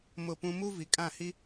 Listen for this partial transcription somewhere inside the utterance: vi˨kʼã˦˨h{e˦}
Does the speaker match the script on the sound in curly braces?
no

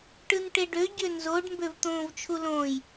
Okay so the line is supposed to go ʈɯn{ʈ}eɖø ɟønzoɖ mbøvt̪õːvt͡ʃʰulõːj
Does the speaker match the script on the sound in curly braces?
yes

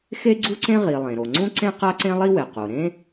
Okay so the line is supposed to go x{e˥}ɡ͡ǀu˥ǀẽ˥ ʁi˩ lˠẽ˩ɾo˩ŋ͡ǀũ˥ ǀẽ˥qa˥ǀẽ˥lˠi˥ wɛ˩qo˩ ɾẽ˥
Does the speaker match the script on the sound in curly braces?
yes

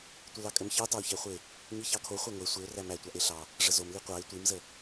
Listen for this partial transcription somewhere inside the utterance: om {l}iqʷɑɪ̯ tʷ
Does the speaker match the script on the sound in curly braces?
yes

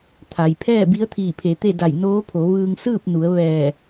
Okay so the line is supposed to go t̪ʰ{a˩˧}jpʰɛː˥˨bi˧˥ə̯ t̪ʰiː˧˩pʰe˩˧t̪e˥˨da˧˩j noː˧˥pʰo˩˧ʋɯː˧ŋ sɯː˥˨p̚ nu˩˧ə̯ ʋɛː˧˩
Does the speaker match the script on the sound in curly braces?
no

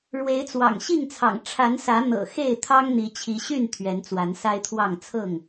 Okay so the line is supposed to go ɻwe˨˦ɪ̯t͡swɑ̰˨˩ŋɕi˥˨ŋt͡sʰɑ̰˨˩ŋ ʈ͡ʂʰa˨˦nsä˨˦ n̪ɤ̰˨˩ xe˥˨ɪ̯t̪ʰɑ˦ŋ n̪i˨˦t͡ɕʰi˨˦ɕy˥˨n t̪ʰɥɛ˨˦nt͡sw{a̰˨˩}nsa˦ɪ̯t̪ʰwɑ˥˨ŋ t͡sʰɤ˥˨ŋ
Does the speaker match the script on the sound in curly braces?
no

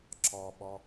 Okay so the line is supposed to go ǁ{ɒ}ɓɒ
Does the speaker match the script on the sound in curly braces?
yes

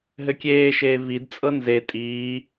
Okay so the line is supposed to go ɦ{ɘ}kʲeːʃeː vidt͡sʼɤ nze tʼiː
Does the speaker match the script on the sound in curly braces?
yes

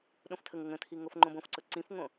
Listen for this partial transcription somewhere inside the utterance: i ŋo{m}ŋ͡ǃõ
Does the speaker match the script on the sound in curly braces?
no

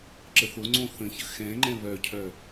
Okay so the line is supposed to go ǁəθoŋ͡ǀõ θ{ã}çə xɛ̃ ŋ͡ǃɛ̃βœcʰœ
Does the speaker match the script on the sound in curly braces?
no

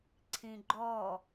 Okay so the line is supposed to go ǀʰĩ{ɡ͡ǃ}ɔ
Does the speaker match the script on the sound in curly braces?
yes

